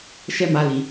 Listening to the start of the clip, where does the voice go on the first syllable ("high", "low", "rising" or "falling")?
high